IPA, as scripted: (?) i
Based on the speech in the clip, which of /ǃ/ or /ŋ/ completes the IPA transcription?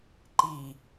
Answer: ǃ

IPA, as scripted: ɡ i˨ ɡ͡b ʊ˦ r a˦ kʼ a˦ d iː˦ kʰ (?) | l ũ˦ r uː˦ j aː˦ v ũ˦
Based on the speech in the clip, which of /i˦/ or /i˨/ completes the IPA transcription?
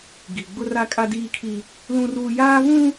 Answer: i˦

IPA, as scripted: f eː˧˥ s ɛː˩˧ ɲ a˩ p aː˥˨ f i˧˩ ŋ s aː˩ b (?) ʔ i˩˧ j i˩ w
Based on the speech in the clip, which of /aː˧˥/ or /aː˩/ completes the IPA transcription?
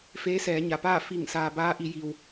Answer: aː˧˥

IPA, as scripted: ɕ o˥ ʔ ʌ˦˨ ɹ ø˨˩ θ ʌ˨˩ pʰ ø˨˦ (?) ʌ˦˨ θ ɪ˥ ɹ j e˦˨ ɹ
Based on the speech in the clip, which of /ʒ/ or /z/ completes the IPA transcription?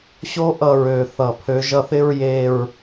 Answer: ʒ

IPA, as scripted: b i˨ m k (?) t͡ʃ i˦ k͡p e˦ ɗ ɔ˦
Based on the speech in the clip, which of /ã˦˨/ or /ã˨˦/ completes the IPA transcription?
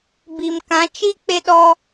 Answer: ã˨˦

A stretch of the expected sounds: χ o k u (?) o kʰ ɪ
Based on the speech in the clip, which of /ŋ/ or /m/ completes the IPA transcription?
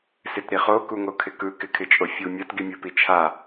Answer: ŋ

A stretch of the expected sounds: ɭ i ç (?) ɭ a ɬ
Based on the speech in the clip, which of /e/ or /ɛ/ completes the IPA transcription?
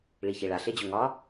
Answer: e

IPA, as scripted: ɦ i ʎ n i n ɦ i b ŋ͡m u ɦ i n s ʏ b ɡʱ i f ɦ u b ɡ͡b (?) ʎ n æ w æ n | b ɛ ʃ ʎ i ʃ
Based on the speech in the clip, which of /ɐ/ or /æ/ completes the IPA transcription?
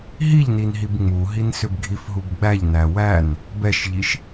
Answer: æ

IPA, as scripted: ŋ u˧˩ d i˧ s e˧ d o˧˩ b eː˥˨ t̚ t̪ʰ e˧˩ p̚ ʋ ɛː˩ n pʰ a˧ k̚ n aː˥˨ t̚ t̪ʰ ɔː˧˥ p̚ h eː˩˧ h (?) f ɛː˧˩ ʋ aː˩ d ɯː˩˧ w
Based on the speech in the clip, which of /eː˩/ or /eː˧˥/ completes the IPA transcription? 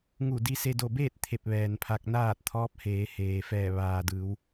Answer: eː˩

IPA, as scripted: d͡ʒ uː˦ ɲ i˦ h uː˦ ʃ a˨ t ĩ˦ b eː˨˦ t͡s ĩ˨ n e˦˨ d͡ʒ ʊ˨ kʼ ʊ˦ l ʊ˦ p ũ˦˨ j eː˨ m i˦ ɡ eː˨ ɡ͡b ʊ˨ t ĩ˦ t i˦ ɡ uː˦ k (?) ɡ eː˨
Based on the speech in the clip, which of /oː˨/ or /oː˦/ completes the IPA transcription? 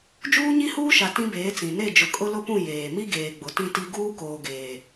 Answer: oː˨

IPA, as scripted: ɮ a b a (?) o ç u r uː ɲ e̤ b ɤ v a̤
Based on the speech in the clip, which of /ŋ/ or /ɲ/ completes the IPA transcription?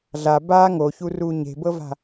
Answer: ŋ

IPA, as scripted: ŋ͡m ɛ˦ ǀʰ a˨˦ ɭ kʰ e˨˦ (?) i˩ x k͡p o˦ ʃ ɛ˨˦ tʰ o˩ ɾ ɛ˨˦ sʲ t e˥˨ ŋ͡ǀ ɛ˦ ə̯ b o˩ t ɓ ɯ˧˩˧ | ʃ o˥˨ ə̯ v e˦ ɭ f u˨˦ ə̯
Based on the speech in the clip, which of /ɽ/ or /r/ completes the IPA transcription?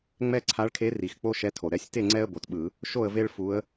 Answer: r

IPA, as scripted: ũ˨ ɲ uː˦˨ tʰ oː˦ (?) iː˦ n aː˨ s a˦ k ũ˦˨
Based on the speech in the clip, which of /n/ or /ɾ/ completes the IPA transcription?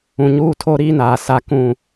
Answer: ɾ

